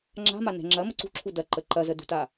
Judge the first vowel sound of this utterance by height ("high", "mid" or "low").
low